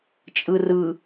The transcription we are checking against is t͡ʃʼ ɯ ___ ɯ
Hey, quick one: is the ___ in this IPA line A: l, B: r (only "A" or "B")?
B